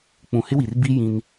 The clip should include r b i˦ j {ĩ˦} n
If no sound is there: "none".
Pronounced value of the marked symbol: ĩ˦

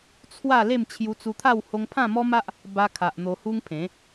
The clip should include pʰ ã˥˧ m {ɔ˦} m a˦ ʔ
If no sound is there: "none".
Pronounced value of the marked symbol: ɔ˦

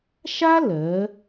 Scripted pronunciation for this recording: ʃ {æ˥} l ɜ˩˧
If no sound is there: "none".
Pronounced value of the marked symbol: a˥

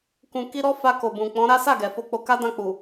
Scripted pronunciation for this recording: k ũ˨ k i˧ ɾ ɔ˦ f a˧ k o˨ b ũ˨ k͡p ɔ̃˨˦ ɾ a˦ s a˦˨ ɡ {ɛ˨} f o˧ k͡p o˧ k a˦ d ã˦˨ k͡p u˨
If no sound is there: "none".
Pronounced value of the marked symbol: ɛ˨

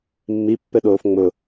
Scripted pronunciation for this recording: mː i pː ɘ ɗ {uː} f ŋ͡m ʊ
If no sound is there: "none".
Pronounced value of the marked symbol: oː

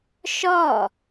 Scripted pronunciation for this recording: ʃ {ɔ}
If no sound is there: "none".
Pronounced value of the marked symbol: ɔ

